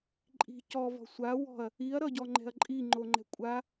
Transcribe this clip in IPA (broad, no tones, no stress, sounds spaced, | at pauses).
ǃʼ i̤ c ɔ v ɔ̤ sʷ a w ɔ̤ ɐ̯ | i ɐ̯ ɾ ʌ ɟ ɔ ŋ͡ǃ ɛ̤ ɐ̯ ǃʼ i ŋ͡ǃ o ŋ͡ǃ ɛ̤ kʷʼ a